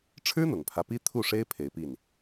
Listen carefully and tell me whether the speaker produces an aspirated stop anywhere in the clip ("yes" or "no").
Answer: yes